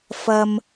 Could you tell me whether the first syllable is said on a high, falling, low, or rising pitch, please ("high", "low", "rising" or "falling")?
high